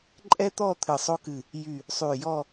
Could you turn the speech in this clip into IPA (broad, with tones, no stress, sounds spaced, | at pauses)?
ǃʼ ɛ˥ t̪ ɔ˥˧ t̪ʰ ɨ˧˩ sˤ o˥ k ɨ˧˩ | j y˧˩ | sˤ y˧˩ j ɔ˥˧